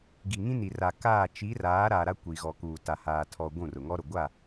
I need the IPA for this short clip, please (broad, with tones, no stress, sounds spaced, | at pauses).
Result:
ɡ i˨ ŋ ĩ˦ n i˨ r a˨ k aː˦˨ t͡ʃ i˨˦ r aː˨˦ ɾ a˨ ɾ a˦ kʷ i˨ ɣ ɔ˨ k uː˨ t a˨ h aː˨ tʰ ɔ˨ ɡʷ ũ˦˨ r ʊ˨ ŋ ɔ˦ ɾ ʊ˨ ɡʷ a˦˨